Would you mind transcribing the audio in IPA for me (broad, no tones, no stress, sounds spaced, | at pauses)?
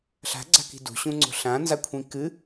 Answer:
ɬ a̤ ɡ͡ǀ a̤ k i̤ d ṳ ɕ ũ ŋ͡ǀ o̤ ɬ ã n z a kʷʰ ĩ k ɨ